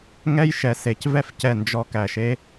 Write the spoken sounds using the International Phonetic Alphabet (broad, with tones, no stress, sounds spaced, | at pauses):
ŋ ɛ˦ j ʃ ɛ˨ s e˨ c v ɛ˦ f c ɛ˦˨ n d͡ʒ ɔ˦ k æ˨ ʃ e˦